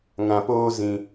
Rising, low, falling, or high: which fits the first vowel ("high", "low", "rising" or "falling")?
low